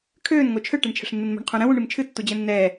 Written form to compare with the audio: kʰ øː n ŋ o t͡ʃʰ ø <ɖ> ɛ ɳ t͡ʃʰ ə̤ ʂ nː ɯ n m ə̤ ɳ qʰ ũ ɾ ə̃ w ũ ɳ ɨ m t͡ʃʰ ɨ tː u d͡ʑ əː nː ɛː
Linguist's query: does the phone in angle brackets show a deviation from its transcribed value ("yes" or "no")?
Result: yes